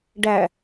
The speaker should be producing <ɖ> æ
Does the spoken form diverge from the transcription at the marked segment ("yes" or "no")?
no